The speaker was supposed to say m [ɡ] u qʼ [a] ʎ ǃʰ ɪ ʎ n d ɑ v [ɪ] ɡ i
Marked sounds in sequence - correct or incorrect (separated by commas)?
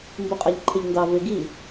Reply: incorrect, correct, correct